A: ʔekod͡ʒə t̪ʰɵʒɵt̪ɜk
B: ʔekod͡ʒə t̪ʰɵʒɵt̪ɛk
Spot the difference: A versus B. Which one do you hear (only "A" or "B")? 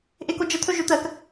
A